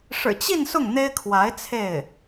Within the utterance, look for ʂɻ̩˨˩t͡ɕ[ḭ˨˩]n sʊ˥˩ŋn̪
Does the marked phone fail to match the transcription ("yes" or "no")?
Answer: yes